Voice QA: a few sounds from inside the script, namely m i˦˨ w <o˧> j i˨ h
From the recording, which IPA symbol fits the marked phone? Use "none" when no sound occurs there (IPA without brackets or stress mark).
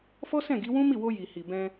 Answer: o˧